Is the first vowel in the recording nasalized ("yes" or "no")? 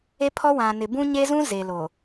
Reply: no